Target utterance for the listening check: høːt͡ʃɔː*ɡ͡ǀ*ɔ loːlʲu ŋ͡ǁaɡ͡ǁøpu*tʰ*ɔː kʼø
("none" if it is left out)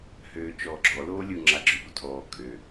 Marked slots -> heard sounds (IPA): ɡ͡ǁ, tʰ

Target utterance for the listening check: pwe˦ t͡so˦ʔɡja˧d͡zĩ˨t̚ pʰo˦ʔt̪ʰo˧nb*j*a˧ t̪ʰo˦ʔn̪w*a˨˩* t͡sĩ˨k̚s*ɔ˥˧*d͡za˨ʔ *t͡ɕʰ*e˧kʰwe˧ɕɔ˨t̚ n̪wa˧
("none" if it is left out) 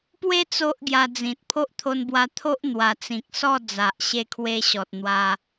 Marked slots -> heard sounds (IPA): w, a˨˩, ɔ˥˧, ɕ

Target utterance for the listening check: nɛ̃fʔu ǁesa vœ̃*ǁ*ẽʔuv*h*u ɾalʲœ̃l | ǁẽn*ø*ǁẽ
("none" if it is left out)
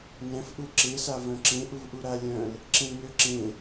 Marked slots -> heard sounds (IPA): ǁ, ʔ, ø

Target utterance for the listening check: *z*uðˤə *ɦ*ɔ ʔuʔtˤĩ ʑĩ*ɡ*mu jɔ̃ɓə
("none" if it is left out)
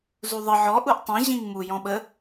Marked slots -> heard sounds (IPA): z, ʕ, ŋ

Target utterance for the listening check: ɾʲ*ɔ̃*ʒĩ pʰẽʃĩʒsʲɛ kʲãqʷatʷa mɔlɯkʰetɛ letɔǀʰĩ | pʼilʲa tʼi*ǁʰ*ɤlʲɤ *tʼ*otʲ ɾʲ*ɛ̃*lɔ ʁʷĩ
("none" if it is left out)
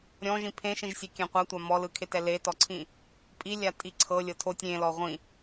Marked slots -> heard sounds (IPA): ɔ̃, ǀʰ, tʰ, ẽ

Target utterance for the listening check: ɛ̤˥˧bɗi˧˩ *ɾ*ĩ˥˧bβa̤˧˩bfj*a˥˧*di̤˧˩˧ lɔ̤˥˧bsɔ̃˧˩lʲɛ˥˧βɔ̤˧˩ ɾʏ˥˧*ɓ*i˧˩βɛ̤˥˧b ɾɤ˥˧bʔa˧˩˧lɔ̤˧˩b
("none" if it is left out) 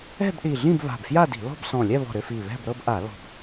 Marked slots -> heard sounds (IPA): ɮ, a˥˧, f

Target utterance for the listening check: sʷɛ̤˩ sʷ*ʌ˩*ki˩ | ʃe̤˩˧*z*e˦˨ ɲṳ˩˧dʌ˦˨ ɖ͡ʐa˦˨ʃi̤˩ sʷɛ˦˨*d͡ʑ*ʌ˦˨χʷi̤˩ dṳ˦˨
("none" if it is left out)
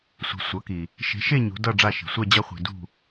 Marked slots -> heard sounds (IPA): ʌ˩˧, ʃ, d͡ʑ

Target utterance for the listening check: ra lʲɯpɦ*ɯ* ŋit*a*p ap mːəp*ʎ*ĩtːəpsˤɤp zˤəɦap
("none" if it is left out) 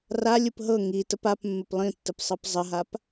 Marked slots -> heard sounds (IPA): ɤ, ə, lˠ

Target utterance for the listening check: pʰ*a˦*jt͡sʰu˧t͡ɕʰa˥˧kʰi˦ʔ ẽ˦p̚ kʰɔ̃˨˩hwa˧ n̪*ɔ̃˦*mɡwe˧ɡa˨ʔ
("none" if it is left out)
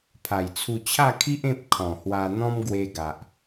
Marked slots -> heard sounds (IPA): a˨˩, ɔ̃˦

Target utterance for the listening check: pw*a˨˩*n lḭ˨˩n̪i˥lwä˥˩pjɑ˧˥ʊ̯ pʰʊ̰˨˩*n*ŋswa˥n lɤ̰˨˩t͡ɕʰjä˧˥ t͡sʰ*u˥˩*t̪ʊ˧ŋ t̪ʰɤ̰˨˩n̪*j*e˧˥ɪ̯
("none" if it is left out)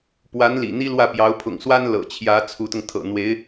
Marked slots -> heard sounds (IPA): a˧˥, none, u˧˥, w

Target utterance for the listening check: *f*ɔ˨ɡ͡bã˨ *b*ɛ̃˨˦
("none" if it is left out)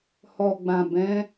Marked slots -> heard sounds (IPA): h, b

